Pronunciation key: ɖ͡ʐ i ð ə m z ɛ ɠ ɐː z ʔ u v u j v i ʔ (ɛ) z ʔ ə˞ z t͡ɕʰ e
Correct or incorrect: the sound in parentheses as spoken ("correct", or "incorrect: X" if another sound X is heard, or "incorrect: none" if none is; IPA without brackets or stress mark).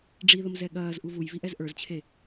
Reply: correct